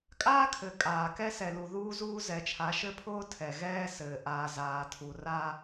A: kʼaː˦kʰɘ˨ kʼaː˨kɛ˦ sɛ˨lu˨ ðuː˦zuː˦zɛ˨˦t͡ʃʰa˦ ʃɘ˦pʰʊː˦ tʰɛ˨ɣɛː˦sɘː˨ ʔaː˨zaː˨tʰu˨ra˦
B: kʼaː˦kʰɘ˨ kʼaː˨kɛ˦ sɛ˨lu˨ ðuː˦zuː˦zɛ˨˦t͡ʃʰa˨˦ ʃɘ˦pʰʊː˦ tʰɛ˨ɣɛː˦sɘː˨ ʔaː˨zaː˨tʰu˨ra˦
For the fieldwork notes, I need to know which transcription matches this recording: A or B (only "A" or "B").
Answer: B